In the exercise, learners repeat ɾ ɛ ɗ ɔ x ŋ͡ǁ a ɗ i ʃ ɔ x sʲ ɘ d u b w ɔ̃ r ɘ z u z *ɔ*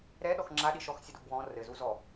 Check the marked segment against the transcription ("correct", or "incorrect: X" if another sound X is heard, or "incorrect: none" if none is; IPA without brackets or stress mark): correct